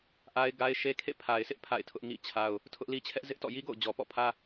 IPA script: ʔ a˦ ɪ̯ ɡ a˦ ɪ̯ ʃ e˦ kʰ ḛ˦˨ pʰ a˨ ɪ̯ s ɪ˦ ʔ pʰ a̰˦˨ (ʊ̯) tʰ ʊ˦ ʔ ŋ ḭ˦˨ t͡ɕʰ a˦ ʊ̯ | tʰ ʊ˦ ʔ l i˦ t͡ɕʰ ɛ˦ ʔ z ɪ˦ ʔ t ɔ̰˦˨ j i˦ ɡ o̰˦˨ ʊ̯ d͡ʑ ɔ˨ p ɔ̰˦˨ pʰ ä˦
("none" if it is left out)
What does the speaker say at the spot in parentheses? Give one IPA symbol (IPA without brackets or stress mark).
ɪ̯